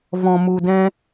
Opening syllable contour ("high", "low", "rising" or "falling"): low